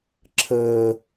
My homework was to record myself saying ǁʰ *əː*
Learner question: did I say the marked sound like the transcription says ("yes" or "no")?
yes